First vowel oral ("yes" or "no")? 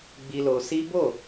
yes